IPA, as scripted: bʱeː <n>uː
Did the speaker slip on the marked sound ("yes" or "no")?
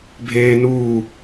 no